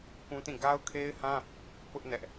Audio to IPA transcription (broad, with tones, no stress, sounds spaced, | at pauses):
k ũ˦ t ĩ˦˨ ɡ a˦ ʊ̯ kʰ e˦ ɪ̯ h ã˦ | p ʊ˦ ʔ n ɛ˦ ʔ